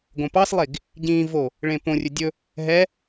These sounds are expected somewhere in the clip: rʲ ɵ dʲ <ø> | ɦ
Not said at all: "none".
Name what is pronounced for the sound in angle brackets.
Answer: ɵ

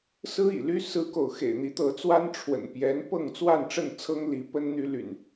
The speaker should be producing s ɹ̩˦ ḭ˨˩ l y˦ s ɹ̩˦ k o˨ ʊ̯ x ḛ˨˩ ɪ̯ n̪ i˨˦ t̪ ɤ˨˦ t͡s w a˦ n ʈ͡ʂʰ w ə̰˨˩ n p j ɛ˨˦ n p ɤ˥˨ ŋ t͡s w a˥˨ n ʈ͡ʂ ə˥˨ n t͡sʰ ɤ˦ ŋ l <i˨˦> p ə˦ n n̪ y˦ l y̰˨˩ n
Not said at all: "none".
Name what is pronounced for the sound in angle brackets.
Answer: i˨˦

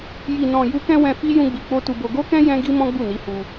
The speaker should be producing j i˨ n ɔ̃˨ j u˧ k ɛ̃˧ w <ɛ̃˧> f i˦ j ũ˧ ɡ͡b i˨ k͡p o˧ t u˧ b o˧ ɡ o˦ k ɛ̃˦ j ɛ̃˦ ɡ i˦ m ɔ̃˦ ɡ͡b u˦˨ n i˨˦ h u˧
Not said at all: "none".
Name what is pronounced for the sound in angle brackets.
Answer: ɛ̃˧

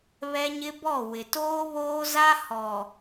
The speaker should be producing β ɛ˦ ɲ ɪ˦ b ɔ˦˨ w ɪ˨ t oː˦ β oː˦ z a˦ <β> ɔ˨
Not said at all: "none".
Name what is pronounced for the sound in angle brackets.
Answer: h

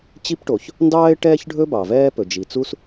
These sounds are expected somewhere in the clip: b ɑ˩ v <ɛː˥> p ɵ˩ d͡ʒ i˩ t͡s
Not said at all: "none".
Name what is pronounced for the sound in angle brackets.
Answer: ɛː˥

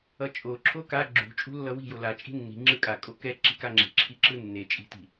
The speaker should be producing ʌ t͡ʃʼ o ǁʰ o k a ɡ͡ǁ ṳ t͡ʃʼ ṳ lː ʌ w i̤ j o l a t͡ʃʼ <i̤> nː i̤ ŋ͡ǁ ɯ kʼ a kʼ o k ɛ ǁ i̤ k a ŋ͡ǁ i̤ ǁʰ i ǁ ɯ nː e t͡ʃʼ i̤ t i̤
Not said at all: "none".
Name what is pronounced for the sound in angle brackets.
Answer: i̤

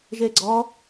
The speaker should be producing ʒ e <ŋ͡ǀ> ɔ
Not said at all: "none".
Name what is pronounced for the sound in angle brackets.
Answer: ɡ͡ǀ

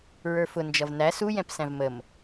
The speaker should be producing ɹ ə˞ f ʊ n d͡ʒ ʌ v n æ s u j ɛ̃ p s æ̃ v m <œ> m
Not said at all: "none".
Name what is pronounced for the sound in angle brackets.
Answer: ə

